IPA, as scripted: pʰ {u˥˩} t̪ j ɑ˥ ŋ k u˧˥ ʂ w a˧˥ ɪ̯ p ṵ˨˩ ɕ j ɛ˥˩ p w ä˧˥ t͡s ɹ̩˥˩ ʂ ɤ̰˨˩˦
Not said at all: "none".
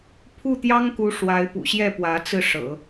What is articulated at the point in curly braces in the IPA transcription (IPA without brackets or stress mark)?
u˥˩